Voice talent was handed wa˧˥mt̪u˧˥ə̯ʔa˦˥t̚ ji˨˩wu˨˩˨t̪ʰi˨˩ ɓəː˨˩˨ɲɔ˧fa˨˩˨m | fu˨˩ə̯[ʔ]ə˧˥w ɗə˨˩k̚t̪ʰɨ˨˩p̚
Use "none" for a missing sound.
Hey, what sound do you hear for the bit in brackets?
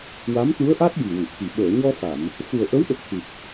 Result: ʔ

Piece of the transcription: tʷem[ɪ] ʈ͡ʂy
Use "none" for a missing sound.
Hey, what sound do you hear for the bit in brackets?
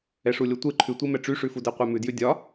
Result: ɛ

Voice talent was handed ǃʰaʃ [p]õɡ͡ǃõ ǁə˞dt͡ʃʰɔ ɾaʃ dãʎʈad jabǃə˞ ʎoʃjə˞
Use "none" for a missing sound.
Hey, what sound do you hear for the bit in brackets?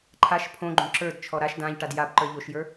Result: pʰ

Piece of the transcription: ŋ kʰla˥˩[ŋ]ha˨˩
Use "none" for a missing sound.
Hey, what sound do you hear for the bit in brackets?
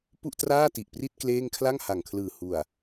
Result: ŋ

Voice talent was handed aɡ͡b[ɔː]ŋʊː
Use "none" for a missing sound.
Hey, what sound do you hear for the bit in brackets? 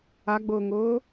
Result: ʊː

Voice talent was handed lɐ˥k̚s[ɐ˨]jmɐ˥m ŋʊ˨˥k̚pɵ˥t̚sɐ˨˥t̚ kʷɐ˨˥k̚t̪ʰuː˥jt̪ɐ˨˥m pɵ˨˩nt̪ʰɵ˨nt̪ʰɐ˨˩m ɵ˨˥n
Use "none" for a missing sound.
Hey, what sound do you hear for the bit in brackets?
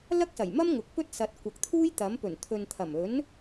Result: ɐ˨˩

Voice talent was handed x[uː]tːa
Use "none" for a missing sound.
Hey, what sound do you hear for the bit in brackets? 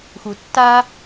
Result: u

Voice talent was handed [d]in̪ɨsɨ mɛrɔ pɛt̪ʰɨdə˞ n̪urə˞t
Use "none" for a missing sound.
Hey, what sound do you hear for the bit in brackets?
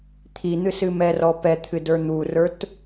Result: t̪ʰ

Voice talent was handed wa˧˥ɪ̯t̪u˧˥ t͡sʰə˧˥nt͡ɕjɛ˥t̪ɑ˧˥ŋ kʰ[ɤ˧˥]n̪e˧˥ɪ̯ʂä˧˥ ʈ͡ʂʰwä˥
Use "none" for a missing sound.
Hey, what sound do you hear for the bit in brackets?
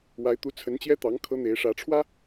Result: ɤ˥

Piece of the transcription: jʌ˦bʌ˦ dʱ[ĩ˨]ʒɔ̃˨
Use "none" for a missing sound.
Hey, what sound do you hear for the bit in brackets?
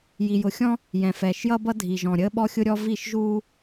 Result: i˨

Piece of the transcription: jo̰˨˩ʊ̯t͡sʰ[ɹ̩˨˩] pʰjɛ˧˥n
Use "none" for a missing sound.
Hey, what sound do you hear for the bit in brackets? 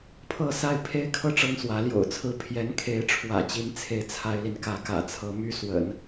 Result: ɹ̩˥˩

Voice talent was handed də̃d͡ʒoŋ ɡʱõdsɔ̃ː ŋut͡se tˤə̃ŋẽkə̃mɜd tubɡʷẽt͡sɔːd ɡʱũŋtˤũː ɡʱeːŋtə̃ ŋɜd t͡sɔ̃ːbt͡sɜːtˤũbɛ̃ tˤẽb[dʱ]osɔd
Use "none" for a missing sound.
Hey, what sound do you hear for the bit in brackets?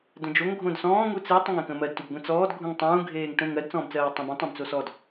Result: t͡s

